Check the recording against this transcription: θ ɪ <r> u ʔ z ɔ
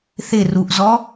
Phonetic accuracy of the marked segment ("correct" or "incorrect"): correct